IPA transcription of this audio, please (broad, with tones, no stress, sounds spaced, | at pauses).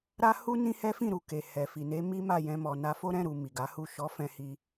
ɾ a˦ h u˦ n ĩ˦ h ɛ˦ f ĩ˦˨ ɾ u˨ k e˨ h ɛ˨ f i˨ n e˨˦ m i˦ m a˦˨ j ɛ̃˧ m ɔ˨ n a˧ f o˦ ɾ ɛ̃˦˨ ɾ u˨ m i˨ ɡ a˨˦ h u˦˨ ʃ ɔ˨˦ f ɛ̃˧ h i˧